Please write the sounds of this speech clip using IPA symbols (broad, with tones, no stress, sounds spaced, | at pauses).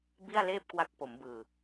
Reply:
b i˥˩ a̯ l eː˥˩ p̚ k w a˦˥ k̚ p o˩˦ m b ɯː˨˩